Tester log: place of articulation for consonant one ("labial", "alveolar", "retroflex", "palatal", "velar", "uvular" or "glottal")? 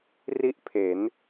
alveolar